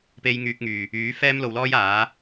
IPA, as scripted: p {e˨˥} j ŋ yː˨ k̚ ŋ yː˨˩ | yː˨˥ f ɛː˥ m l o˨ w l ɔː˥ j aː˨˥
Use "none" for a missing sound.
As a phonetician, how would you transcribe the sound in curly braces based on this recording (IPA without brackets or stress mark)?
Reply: e˧